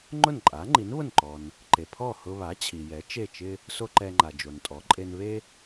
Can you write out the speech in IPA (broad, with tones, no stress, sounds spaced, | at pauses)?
ŋ͡ǃ ʊ˥˩ n ǃʼ a˩˥ ŋ͡ǃ i˩˥ n β ʊ˥˩ n ǃ ɔ˩ n | ǃ e˩ pʰ ɔ˥˩ h ʊ˧ β a˩˥ t͡ɕʰ i˩ j ɛ˩˥ t͡ʃ e˥˩ t͡ʃ ɪ˥ | s o˧ ǃ ɛ˧ ŋ͡ǃ a˩ d͡ʒ o˩ n tʼ ɔ˩˥ ǃʼ e˧ n β e˥